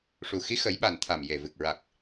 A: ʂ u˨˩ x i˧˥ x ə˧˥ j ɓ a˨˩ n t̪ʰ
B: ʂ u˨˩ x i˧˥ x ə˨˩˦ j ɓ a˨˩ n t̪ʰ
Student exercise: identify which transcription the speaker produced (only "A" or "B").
B